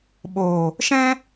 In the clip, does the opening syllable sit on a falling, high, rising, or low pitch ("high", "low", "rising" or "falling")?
low